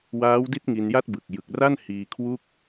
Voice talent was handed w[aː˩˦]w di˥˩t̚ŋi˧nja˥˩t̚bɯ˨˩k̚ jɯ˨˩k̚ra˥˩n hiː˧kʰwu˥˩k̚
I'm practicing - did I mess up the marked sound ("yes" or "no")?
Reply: yes